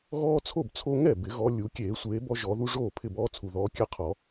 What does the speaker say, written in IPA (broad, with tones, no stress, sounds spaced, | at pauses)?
ɣ ɔː˦ t͡sʰ o˥˩ b t͡sʰ o˦ ŋ ɛ˥˩ b ɪ˨˩˦ ɣ ɔ˨˦ lʲ u˨˩˦ kʲ eː˨˩˦ sʷ eː˨˦ b ɔ˦ ʒ ɔ˨˩˦ ð u˦ ʐ oː˥˩ pʰ ɪ˥˩ b ɔː˦ t͡sʰ u˨˩ ð ɔː˨˦ kʲ ɛ˦ qʰ ɔ˨˩˦